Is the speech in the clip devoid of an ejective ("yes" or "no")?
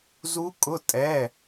no